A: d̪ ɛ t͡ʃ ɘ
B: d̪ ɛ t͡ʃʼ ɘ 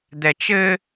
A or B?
A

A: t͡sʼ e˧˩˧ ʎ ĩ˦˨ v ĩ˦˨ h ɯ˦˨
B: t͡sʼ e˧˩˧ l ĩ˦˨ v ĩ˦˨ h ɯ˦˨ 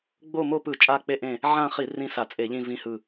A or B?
A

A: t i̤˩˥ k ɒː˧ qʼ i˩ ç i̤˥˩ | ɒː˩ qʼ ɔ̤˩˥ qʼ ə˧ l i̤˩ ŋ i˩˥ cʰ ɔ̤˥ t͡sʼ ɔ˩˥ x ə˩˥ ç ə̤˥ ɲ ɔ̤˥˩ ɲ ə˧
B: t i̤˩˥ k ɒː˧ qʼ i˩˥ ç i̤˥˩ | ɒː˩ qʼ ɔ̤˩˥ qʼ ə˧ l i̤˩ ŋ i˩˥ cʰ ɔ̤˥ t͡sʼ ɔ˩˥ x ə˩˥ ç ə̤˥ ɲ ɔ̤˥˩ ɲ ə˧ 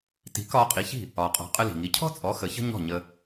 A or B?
B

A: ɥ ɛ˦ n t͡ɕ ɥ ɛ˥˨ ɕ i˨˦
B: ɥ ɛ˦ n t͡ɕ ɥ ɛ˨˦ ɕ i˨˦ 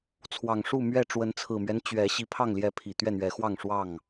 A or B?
B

